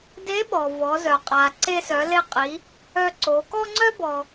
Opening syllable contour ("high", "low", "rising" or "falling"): rising